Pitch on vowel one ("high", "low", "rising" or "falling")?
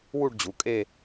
falling